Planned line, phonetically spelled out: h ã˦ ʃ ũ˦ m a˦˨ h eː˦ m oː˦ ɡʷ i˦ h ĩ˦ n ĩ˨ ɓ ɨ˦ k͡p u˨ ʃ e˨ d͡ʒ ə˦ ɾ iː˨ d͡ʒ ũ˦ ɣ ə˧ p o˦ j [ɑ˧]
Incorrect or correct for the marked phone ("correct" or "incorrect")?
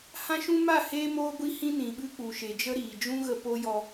incorrect